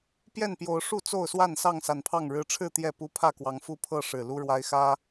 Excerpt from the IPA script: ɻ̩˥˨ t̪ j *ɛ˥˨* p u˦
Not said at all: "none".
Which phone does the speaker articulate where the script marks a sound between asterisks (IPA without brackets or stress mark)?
ɛ˥˨